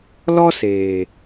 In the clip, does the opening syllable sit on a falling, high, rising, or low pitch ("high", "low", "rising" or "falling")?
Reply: high